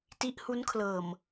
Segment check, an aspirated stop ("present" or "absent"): present